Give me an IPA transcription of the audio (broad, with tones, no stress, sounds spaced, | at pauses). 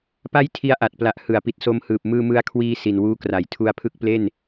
p a˥˩ j tʰ i˦˥ a̯ ʔ a˨˩ t̚ p l a˨˩ ʔ h ɯ˩˦ a̯ p i˨˩ t̚ s o˧ m h ɯː˨˩ p̚ m ɯː˧ m ɯ˧ a̯ kʰ w iː˧ s i˨˩ n w uː˦˥ k r a˩˦ j tʰ u˧ a̯ pʰ ɯ˦˥ k̚ p l e˥˩ n